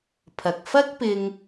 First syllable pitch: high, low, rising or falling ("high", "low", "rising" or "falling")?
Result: low